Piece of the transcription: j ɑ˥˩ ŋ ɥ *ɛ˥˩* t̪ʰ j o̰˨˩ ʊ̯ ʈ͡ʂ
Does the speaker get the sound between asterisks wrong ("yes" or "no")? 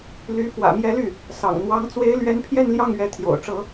yes